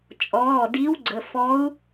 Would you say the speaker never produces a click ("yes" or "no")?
no